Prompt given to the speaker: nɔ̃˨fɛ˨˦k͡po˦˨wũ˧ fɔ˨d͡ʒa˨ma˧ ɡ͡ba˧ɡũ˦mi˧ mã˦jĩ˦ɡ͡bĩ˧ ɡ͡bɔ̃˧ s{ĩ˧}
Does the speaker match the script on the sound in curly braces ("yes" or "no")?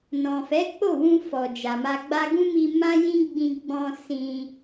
yes